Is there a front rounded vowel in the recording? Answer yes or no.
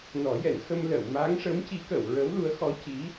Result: no